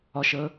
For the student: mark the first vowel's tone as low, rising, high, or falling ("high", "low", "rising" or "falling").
low